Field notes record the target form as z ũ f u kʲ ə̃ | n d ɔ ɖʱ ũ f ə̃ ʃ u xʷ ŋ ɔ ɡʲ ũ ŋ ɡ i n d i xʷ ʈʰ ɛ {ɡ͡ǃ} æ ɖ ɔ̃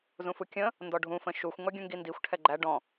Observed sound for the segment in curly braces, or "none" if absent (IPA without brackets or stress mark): ɡ͡ǃ